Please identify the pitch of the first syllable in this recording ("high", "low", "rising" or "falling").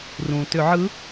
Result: low